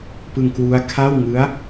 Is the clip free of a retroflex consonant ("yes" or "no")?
yes